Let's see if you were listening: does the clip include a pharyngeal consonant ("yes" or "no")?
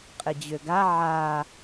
yes